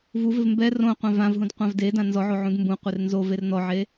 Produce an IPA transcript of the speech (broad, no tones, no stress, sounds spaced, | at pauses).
v u v ɪ v m b ɛ r õ qʷ ã v ã v ɦ ũ d qʷ ã v d e d ã n z ɔ ʕ o ʕ ũ d m b ũ qʷ e r n z o v e r n ɔ ʕ e